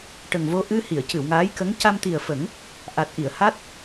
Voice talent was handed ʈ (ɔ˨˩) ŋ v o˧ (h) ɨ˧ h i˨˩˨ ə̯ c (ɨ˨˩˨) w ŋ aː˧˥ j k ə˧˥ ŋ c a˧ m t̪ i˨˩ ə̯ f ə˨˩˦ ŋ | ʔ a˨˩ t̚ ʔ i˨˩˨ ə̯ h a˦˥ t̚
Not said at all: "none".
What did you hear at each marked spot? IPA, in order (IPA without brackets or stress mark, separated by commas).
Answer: ə˨˩, ʔ, ɨ˨˩˨